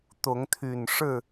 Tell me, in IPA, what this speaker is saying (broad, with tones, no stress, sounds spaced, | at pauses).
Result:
t̪ ʊ˨˦ ŋ t̪ʰ y˨˩ n ʂ ɻ̩˥˨